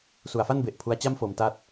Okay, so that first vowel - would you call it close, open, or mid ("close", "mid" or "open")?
close